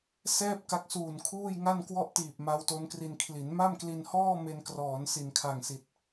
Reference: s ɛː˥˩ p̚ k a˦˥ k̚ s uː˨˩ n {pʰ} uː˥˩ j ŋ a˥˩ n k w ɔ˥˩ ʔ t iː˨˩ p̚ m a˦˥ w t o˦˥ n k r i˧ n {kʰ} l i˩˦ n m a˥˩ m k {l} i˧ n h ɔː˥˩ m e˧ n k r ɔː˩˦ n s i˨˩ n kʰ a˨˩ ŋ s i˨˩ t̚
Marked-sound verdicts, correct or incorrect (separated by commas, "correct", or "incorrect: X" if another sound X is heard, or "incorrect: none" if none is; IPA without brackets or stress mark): incorrect: kʰ, correct, correct